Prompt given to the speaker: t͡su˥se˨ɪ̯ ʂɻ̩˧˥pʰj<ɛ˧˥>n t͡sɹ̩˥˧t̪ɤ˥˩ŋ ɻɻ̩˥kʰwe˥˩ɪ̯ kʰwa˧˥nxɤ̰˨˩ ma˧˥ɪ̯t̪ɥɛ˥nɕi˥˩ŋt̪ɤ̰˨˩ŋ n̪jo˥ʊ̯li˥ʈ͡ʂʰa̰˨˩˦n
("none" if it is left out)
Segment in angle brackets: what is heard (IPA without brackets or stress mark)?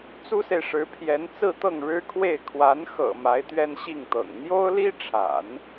ɛ˧˥